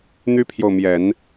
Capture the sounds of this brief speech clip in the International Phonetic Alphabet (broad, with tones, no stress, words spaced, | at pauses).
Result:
n̪y˥pʰjo˨ʊ̯mjɛ˨˩˦n